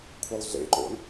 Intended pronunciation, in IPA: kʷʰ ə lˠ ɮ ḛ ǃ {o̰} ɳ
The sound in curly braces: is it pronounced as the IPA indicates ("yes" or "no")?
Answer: yes